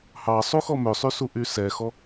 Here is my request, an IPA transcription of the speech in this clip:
h ɑ sˤ u x ɔ m ø sˤ y s u ʔ y s ɛ x ɔ

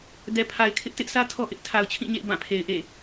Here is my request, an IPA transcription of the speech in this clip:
d ɛ˨ pʰ a˨ ɪ̯ kʰ ɪ˦ ʔ t ɪ˦ ʔ sʰ ä˦ tʰ ɔ˦ ʔ ɪ˦ ʔ tʰ a˨ ʊ̯ t͡ɕʰ ĩ˦˨ ɲ ḛ˦˨ ɪ̯ b ã˦˨ pʰ e˨ ɪ̯ ʔ ḛ˦˨

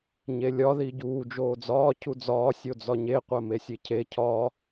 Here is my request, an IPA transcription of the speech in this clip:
ɲ e lʲ ɒ ð i ɟ uː d͡ʒ oː d͡z ɒː cʰ u d͡z ɒː sʲ o d͡z ɒ ɲ e qʷ æ m e sʲ e cʰ e cʰ ɒ

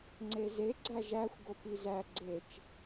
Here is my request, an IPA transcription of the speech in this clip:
ŋ͡ǀ e z e ɡ͡ǀ æ ʒ æ xʷ ɡ o p i z æ ɡ͡ǀ e t͡ʃ

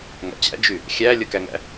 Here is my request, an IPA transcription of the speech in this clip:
ŋ a̰ t͡ɕ æ̰ d͡ʒ y | xʲ æ lʲ ə k æ ŋ æ̰

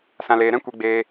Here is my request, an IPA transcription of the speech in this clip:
s ã˧ l eː˧ ɾ ɛ̃˦ kʷ i˧ ɡ͡b eː˧

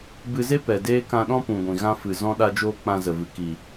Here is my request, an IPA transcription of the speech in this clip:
b ɨ˧ z e˦ p ɛ˨ d eː˦ k ã˧ ɗ ɔ̃˦ p ũ˨ ɡʷ ĩ˨ ɣ ã˧ f ɨ˨ z ɔ̃˧ ɗ a˧ d͡ʒ oː˧ k͡p ã˧ z ə˨ v ɨ˨ k i˨

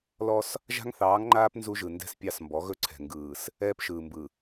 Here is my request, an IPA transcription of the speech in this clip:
l ɔ˦ s | ʒ a̤˦ ŋ θ ɑː˨˦ ŋ ŋ͡ǃ aː˦ p n z u˦ ʒ ɯ˨ n d ɛ̤˦ s pʲ ɑ˦˨ s m b ɔ˨˦ ɣ ɵ˦ ǀʰ ɛ̤˨ ŋ ɡ ɯː˨ s | ɛː˦ p ʃ ɯː˨ m b ɯ˨

